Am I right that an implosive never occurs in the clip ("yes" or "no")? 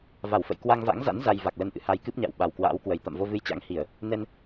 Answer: no